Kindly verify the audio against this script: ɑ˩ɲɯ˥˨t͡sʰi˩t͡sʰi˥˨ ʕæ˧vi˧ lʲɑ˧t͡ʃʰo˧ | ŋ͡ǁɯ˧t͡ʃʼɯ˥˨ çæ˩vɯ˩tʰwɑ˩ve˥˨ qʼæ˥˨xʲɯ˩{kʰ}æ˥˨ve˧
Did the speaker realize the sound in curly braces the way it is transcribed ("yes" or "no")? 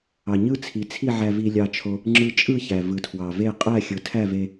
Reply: no